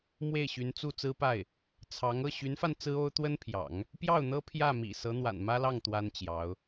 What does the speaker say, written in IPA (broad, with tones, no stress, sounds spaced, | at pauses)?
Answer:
m w e˥˩ ɪ̯ ɕ y˧˥ n t͡s u˥˩ t͡s ɹ̩˥ p a˥˩ ɪ̯ | t͡sʰ ɑ˧˥ ŋ ɤ˥˩ ɕ y˧˥ n f a˧ n t͡s ɹ̩˥ o˥ ʊ̯ t̪ w ə˥ n pʰ j ɑ̰˨˩˦ ŋ | p j ɑ˥˩ ʊ̯ n̪ ɤ˥ pʰ j ä˥˩ m ḭ˨˩ s ɤ˧˥ n̪ w a̰˨˩ n m ä˥ l ɑ˥˩ ŋ t̪ w a˥ n t͡ɕ j ɑ˧˥ ʊ̯